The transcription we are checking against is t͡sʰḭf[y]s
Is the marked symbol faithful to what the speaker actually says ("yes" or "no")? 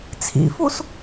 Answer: no